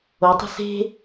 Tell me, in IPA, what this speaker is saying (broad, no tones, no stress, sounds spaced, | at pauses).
o tˤ ə̤ s e̤